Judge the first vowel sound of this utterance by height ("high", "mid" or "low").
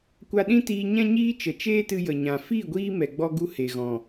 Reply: low